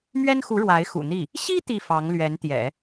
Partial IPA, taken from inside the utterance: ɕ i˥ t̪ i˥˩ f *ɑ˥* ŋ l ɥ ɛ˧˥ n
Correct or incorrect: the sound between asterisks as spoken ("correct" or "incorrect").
incorrect